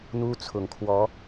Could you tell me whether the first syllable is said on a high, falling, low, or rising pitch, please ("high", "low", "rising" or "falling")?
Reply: high